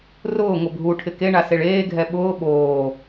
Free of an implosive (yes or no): no